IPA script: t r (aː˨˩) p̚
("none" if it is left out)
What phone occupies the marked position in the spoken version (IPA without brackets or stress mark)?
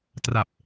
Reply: a˨˩